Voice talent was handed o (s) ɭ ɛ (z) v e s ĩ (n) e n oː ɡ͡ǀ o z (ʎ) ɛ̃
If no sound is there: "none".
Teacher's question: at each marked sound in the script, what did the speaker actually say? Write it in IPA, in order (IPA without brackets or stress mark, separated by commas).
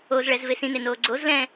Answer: z, z, n, l